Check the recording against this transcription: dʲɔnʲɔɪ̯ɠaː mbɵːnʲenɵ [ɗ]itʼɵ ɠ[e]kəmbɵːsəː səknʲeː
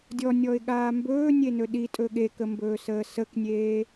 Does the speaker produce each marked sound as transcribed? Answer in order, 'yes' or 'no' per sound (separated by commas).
yes, yes